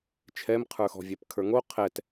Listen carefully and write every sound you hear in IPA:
t͡ʃʰ ɛ m qʰ ə˞ x ɔ̤ vʲ ɛ p kʰ ə˞ ŋ o qʰ ɛ t

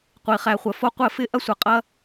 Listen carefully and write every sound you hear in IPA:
qʷ i˩ χ æ˩ χʷ ə˩ f o˧ qʷ ɘ˧˩˧ f ɪ˧˩˧ ʔ ɐ˧ sʷ ɐ˩ qʼ ɐ˧

